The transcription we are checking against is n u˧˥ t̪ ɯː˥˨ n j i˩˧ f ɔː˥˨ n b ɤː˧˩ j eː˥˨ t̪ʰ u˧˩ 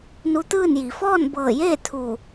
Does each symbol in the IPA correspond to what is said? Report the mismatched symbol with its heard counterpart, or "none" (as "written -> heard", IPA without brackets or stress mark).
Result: none